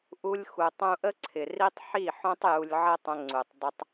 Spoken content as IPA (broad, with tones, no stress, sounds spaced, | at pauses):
ʔ u˧ lʲ x u˨ tˤ ũ˧ ʔ ə˦ ǀʰ ɪ˨ r i˦ tˤ ħ i˦˨ ħ õ˦ tˤ j u˧ lʲ ʕ ə˦ tˤ ə̃˧ ŋ͡ǀ u˨ tˤ dˤ ɪ˧ tˤ